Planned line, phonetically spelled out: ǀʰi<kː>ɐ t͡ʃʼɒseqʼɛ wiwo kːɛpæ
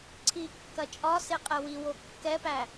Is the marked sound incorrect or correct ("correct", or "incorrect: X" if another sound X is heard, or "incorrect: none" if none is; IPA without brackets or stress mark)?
correct